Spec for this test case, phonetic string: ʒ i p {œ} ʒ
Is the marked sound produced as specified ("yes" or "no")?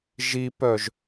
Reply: yes